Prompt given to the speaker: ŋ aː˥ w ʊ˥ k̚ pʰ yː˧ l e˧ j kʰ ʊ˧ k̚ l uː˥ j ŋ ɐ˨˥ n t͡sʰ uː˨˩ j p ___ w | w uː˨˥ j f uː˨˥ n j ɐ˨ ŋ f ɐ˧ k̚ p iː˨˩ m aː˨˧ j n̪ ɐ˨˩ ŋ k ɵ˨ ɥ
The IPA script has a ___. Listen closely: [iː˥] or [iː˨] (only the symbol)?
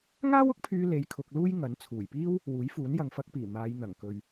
iː˥